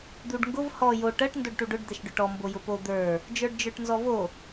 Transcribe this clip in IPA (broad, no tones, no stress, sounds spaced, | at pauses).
d̪ u ɖ ŋ ɡ ʊ v h ɔ j o ʈ ɜ ʈ n d o ɖ ʈ u ɖ ʊ ɖ d̪ ɛ ʃ ɖ ʊ ʈ ɔ m b o j ʊ p o d̪ ə˞ | d͡ʒ ə˞ ɖ d͡ʒ ə˞ ʈ n z ɔ v o